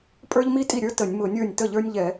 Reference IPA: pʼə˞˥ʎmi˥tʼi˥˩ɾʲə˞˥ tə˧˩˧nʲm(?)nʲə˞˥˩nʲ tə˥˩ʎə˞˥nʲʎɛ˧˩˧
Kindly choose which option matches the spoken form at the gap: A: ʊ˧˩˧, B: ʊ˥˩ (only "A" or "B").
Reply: A